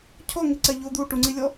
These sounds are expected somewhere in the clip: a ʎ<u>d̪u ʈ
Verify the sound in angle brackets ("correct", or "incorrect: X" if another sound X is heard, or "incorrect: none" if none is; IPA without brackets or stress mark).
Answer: incorrect: o